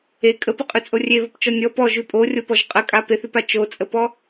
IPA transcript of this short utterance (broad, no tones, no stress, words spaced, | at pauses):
e kʼəpəqʼʉt͡sʼo rʲeβəpt͡ʃɔ nʲɔ pɔʒʉ pʼorʲopɔʒ qʼəkʼa peθʉpa t͡ʃot͡sʼəpɔ